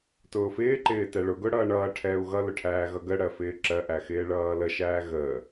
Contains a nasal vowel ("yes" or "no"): no